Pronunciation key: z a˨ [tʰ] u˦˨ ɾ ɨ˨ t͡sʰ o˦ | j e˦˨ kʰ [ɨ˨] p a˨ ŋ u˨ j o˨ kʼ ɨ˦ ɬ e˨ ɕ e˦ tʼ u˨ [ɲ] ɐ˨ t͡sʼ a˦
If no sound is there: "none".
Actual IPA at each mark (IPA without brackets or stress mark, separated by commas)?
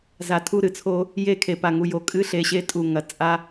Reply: tʰ, e˨, ŋ